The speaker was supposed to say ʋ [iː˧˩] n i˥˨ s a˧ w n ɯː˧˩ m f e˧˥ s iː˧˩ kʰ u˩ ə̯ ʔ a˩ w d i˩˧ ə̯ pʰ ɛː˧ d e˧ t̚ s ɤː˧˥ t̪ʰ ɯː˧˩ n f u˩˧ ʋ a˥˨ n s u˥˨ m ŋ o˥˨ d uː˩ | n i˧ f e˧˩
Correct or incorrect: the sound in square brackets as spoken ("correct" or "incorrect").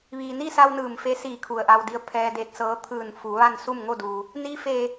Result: incorrect